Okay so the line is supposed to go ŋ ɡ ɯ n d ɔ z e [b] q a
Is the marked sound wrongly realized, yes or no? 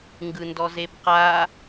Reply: no